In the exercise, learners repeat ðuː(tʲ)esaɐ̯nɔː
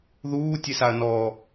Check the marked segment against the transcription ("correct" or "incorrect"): correct